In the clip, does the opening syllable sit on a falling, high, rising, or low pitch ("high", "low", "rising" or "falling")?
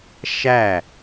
falling